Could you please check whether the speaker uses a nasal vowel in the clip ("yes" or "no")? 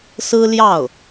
no